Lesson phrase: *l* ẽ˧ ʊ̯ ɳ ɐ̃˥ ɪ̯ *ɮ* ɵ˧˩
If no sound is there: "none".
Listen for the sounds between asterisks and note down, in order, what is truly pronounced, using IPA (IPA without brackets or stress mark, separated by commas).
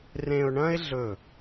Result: r, ɮ